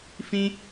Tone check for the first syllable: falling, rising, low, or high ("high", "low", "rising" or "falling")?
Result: high